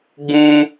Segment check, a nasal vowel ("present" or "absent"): present